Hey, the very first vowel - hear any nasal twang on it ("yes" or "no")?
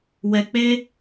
no